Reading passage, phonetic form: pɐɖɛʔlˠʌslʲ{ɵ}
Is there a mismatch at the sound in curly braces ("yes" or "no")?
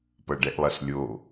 yes